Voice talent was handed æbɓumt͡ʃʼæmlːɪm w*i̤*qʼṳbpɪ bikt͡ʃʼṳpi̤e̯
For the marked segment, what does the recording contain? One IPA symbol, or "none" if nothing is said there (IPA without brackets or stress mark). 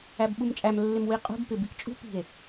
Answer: i